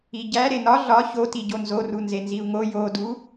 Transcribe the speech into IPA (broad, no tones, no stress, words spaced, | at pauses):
iɟæ ɾenɒ ɮɒ çoti ɟonzoru nzenziu̯ŋo jodu